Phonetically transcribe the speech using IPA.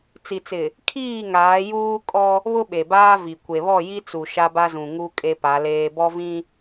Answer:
t͡s i˨ t͡s ɪ˨ | kʰ iː˦˨ ŋ aː˨˦ j uː˦ kʼ ɔ˦ | β ʊ˦ ɓ e˨ b aː˦ v i˨ kʷ e˨ β ɔ˦˨ j i˦ t͡s u˨ ʃ a˦ b a˦ z ũ˨ ŋ u˦ kʼ e˦ p a˨˦ l eː˦ b ɔ˦ v ĩ˦

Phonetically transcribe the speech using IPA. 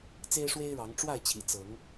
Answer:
t͡s e˦ ɪ̯ ʂ w e˦ ɪ̯ ɻ ɑ˨˦ ŋ ʈ͡ʂ w a˥˨ ɪ̯ t͡ɕʰ ḭ˨˩ t͡s ɤ˨˦ ŋ

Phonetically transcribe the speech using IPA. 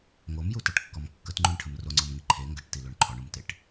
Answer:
ŋ o m j u t æ ʈ kː ɔ m kː ə t ŋ͡ǃ u ɳ ʈʰ ə m r o ŋ͡ǀ ɔ m ŋ i ǃʰ e ŋ ɡ ə ʈ t i l o ɳ ǃʰ ɔ ɳ u m t e ʈ

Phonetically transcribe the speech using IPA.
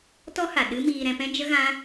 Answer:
t ɔ˦ h a˨ ɗ ɨ˦ m iː˧ ɾ ɛ̃˧ p ɛ̃˦ d͡ʒ ə˦ ɣ ã˦

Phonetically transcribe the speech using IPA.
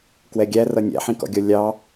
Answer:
k w ɛ ɡʲ æ r ʌ nʲ æ̰ ħ ĩ k ɔ̰ ɡʲ ɔ lʲ ɑ

